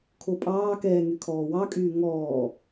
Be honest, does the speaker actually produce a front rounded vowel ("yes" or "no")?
yes